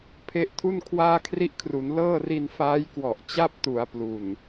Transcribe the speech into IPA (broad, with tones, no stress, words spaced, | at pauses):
pʰe˦˥ʔtʰu˥˩n kʰwaː˥˩kʰri˥˩ʔkʰru˩˦n lɤː˥˩ri˧n faː˦˥jkwɔ˨˩ʔ t͡ɕa˥˩p̚tu˩˦a̯ plu˨˩n